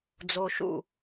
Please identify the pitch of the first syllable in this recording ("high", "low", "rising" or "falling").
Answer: low